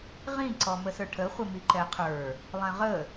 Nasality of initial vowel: nasal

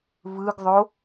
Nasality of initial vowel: oral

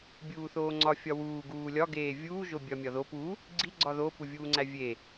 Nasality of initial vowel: oral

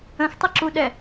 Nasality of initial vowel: nasal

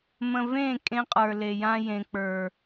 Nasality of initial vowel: nasal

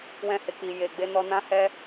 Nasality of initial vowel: nasal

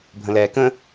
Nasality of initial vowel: nasal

